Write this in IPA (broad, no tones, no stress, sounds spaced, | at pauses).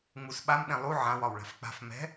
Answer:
ŋ͡m u s ɓ a m ɗ ɛ̃ lˠ u ʕ ã w ɒ w ɭ a̤ f k͡p a̤ f m ɛ̤